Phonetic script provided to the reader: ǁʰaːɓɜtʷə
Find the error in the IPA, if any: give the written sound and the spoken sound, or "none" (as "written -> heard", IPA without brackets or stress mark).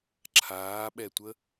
ɜ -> ɛ